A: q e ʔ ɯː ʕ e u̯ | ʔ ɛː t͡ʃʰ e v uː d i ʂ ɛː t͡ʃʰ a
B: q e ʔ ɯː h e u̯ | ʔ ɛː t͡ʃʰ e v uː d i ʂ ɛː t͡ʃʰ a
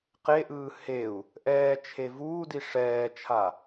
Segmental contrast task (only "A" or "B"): B